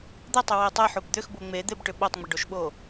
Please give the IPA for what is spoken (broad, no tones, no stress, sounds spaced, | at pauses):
d̪ ə tˤ ʏ w e tˤ ɛ ħ o b d̪ ʏ x b o ŋ͡m e d̪ e b ʈ ʏ ɓ o tˤ ŋ͡m ə ɖ o ʃ ɓ o